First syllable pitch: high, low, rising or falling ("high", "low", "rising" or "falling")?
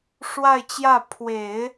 falling